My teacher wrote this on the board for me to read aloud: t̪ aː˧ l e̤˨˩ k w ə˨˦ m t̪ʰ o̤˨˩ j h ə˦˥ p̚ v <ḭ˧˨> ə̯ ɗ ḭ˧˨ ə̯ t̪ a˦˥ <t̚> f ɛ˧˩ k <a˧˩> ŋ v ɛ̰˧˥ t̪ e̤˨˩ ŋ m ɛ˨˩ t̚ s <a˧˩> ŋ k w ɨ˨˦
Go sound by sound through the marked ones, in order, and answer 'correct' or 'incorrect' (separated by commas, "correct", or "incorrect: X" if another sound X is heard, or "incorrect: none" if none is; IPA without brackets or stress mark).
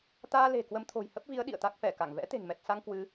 incorrect: i˨˦, incorrect: k̚, correct, incorrect: a˧